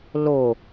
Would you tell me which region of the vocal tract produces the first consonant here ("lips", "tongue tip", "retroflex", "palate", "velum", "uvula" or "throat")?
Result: tongue tip